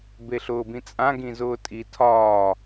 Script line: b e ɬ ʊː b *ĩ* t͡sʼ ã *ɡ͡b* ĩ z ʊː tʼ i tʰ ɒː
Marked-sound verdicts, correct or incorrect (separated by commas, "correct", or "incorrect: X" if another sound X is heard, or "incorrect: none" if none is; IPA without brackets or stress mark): correct, incorrect: ɡ